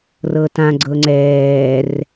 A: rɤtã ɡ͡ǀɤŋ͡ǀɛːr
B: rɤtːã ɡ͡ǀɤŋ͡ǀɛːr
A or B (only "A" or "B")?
A